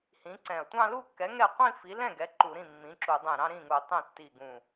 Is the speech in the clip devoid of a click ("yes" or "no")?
no